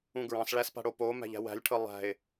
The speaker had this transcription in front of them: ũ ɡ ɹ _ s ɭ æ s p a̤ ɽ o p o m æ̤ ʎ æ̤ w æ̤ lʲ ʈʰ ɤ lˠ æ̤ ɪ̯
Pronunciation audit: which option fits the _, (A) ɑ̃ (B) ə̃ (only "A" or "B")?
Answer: A